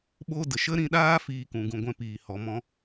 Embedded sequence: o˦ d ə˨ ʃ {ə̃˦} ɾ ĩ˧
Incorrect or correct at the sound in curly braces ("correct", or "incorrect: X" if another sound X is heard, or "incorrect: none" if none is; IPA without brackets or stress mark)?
incorrect: ə˦